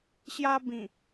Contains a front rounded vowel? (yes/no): no